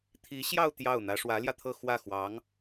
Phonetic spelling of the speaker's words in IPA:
t̪ʰ i˧˥ ɕ j ɑ˥˧ ʊ̯ t̪ j ɑ˥˩ ʊ̯ n̪ ä˧˥ ʂ w ä˧˥ l j ä˧ t̪ʰ ɤ˥˧ x w ä˥˩ x w ɑ˧˥ ŋ

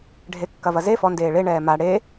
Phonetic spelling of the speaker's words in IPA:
ɖʱ e kː ɐ v ɐ z e f ɔ n d eː ɭ e ɳ ɛː m a ɽ e

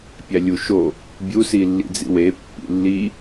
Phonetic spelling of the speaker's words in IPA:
pʲ æ lʲ u ʃ o | bʲ u s i lː ḭ d͡z ḭ w e pː ḭ lː i

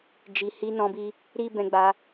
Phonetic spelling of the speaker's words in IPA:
d͡ʒ i˨ h i˧ n ɔ̃˧ b i˧ | ɾ i˦ b ɛ̃˧ ɡ͡b a˧

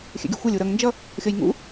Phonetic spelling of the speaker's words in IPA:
xʲ ɛ̰ ɡʲ u xʷ a lʲ u ɾ ʌ ŋ n d͡ʒ ʌ | xʲ ʌ j ŋ ṵ

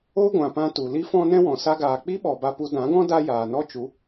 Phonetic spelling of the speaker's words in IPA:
o˦ ɡʷ ã˨ p ã˧ t u˨ l i˦ f ɔ̃˦ n ɛ̃˦ w ɔ̃˨ s a˦ ɡ aː˧ k͡p i˦ ɓ ɔ˨ b a˧ p u˧ d ã˨˦ ɡ ɔ̃˦ d a˦ j aː˨ n ɔ˦ t͡ʃ u˨˦

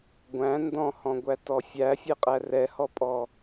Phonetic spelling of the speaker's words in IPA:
ɡʷ æ̃ n d ɔ̃ h ɔ̃ ɡʷ æ t ɔ fʲ æ fʲ ɛ qʼ æ r ɛ h ɔ pʼ ɔ

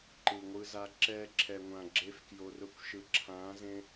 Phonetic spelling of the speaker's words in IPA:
ǃ ɯ˨ ŋʷ ɯ˧ z a˧ ǁ ɛː˧ ǁʰ ɛ˨ ŋʷ ã˨ ɡ͡ǁ e˦ f k j o˧ r ʊ˦ kʷ ʃ ɯ˨ ǁʰ ãː˨˦ z ẽ˧

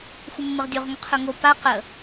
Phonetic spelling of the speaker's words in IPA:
xʷ ə mː ə ʁ dʲ o ʁ ŋ ɵ qʰ ɵ ŋ o p a q ə

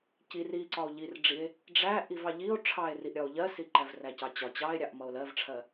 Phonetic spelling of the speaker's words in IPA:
c i r i ǀ ɒ o̯ ʎ i r ɖ͡ʐ i e̯ | ɖ͡ʐ æ ʔ i v ɑ ʎ i o̯ ʈ͡ʂʰ ɑ e̯ r i ʔ ɾʲ ɒ o̯ ʎ ɜ s i ǃ æ v r æ c ɑ t͡ɕ ɒ t͡ɕ ɑ e̯ ɾʲ ɑ ʔ m ʌ o̯ l ɜ v ʈ͡ʂʰ ɜ

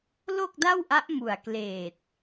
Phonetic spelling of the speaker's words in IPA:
l o˥˩ k̚ d a˥˩ w ʔ a˦˥ ʔ m u˨˩ a̯ k l eː˨˩ t̚

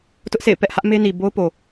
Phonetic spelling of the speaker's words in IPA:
t ʊ˦ ʔ sʰ ḛ˦˨ ɪ̯ p ɛ˦ ʔ h ä˦ ʔ m e˦ n i˨ b o˦ ʊ̯ p o˨

